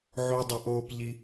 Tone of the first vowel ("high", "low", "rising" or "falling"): high